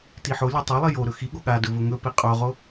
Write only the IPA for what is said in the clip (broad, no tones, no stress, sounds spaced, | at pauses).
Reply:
t i ħ o lʲ o tˤ o lˠ i j o ɾ ɵ x i ɠ o ɠ a d ɵ v ɵ ŋ ɵ p i qʼ o ʁ o